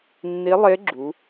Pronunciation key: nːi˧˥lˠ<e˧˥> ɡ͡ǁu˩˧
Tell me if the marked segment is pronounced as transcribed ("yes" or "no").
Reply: yes